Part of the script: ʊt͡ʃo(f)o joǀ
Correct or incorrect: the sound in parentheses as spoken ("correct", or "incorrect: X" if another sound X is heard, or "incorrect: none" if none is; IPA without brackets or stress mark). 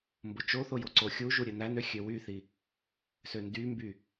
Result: incorrect: θ